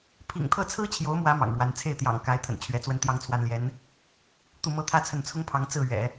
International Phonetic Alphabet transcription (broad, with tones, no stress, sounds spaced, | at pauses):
pʰ ḭ˨˩ ŋ t̪ʰ ɤ˥˩ t͡sʰ ɹ̩˥ t͡ɕʰ j o˧˥ ʊ̯ m w ä˧˥ m ɑ̰˨˩ ŋ ɻ w a˧˥ n t͡sʰ e˥˩ ɪ̯ t̪ j ɑ̰˨˩ ŋ k a˧˥ ɪ̯ t̪ʰ ə̰˨˩ n t͡ɕʰ ɥ ɛ˧˥ t͡s w ə˥ n t̪ j ɑ˥ ŋ t͡sʰ w a˥ n l j ɛ˧˥ n | t̪ u˥˩ m ɤ˥ t̪ʰ ä˥ t͡sʰ ə˥˩ n t͡sʰ ʊ˥ ŋ pʰ ɑ˧˥ ŋ t͡s ɹ̩˥˩ ɥ ɛ̰˨˩˦